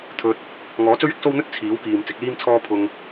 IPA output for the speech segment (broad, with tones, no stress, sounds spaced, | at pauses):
t̪ʰ ɵ˧ t̚ | ŋ ɔː˨˥ t͡s ɵ˥ ɥ ɪ˥ k̚ s o˥ w n̪ ɵ˥ t̚ t͡sʰ iː˨˥ w k iː˨ m t͡s ɪ˨˥ k̚ l iː˥ m t͡sʰ ɔː˥ pʰ ʊ˧ ŋ